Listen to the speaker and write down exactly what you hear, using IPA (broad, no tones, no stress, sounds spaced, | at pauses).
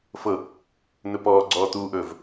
f ɤ | n̪ ɵ p ɔː ɡ͡ǀ ɔː t̪ uː ʔ ɵː v